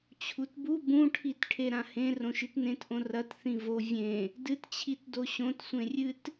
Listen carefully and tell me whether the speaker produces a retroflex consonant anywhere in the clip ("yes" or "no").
yes